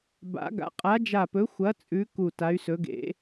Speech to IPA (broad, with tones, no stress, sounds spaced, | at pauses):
b a̰˨˥ ɡ a̰˨˥ qʼ a˨˥ d͡ʒ a˧˩ p ɵ˨˥ xʷ ɐ˨˥ t͡sʼ ʉ˨˥ k u˧˩ t a˨˥ y̯ s ɵ˨˥ ɡ ḛ˨˥